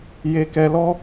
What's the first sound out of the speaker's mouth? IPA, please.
j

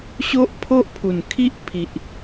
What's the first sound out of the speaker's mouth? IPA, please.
ɕ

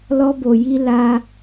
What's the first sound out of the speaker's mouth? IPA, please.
l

